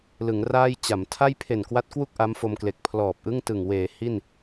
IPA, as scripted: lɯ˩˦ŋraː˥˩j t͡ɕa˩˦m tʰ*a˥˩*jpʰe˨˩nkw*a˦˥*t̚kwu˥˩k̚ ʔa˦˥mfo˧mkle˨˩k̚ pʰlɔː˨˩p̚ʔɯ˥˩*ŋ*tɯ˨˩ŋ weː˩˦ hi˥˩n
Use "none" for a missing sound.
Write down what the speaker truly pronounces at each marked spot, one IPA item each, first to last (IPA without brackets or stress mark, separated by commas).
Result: a˥˩, a˦˥, ŋ